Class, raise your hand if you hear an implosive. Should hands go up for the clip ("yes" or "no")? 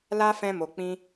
no